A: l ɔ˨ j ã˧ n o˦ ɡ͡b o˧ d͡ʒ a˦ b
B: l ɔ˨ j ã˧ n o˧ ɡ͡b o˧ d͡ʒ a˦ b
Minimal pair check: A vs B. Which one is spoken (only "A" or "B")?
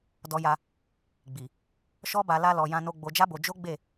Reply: B